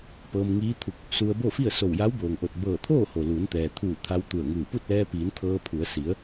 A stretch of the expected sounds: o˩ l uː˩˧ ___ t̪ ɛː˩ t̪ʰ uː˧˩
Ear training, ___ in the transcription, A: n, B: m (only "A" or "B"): A